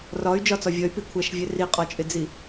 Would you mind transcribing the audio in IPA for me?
r ɒ y̯ d͡ʒ ɒ t͡s ɒ vʲ ʌ y̯ p i kʷʰ æ ʃ vʲ ɛ r i qʼ ɒ t͡ʃʼ ɪ d͡z i

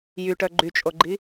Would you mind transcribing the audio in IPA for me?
j y ʈ œ ɡ͡ǃ y t͡ʃʼ o ɡ͡ǃ i

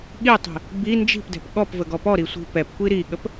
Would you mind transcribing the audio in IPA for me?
ɠ i tˤ i̤ | b i n d͡ʒ i̤ p d ɛ̤ p ɠ ɔ p v ə ɡ ɔ p ɔ ɾ i sʷ i̤ p ɛ p kʷ i ɾ i ɠ ə p

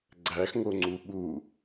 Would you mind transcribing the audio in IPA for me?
ɡ͡ǀ æ x ŋ o ŋ͡ǀ u ɓ u

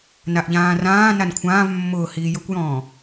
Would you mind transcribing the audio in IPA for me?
n a ʔ ʎ ãː r ãː n a n kʷʰ ãː v mː ʊː h iː j ʊ kʷ j ɔ̃ː

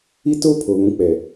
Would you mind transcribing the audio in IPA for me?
i˦ t o˦ pʰ o˨ β ũ˨˦ k͡p ɛ˨

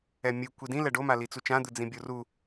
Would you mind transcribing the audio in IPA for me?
ɛ mʲ ɯ kʷ i d ĩ l ɛ ɖ o m a l i t͡s u t͡ʃ ã d̪ ɯ d͡z ĩ bʲ o r u

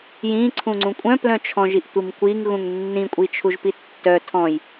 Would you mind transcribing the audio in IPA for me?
j ĩ ǀʰ ũ ŋ͡ǀ ũ kʷʼ œ̃ p l œ̃ t͡ʃʰ ɔ̃ ʒ i ʔ tʷ i m kʷ i ŋ ɣ ũ ŋ nː ĩ kʷʼ i t͡ʃʰ u ʒ p i tː œ tʰ ɔ̃ j

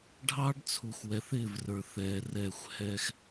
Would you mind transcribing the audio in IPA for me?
ɖʱ ɑː˦ ɖ t͡sʰ u˨ x w ɛ˨ θ ɪː˦˨ v r ə˞˨ θ ɛː˨ r ɛ˦˨ xʷ h ɛ˦ x

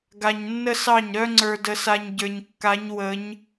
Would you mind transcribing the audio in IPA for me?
ɡ a˨ ɲ nː ə˦ s ɑ˦˨ ɲ ɾ œ˦ ŋ͡ǀ ə˞˨ d ə˨ s a˨ ɲ ɟ ə˞˨ ɲ kː a˨˦ ɲ w ə˨˦ ɲ

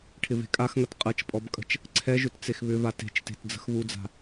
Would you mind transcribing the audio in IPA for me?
ʈʰ ɪ v e̤ kʼ a x ŋ ɐ t qʼ ɐ t͡ʃ pʼ ɔ b kʼ ə̤ t͡ʃ | ǀʰ ɛ ʒ ʏ t t͡s e x β ʏ v a t e̤ t͡ʃ t e̤ t d͡z ə̤ x β u d͡z a̤

